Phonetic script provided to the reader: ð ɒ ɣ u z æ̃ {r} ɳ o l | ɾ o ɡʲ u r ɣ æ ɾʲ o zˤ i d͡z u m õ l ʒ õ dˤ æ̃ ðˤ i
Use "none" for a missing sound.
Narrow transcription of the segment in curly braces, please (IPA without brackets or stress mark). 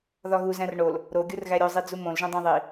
r